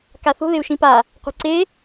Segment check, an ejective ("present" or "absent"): absent